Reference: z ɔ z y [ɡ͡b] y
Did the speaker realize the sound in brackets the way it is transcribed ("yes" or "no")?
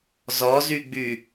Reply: yes